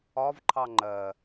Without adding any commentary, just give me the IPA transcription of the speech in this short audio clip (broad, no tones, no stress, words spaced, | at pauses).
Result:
ɒvǃʰɑ ŋ͡ǃɜ